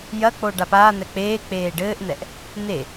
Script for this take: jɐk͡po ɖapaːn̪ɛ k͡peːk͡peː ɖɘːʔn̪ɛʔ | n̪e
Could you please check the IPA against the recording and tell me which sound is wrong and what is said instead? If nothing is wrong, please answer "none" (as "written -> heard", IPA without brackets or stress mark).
none